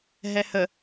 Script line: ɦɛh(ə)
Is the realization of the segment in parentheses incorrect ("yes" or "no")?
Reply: no